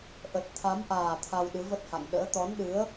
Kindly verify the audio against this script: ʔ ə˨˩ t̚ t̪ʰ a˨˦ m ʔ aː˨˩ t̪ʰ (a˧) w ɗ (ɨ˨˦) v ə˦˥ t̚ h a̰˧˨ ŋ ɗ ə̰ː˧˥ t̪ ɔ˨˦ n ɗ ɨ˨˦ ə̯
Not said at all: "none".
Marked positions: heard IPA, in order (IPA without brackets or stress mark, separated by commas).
a˧, ɨ˨˦